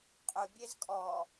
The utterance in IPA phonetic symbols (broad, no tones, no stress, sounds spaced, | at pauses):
qʼ ʊ bʲ e z kʼ ɔ